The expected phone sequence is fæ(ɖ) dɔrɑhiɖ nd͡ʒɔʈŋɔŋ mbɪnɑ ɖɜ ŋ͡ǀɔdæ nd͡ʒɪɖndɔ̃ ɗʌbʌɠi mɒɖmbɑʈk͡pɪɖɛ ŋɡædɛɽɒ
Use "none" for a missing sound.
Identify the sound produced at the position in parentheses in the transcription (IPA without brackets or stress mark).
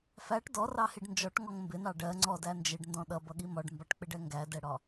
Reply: ʈ